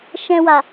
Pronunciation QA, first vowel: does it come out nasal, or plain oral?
nasal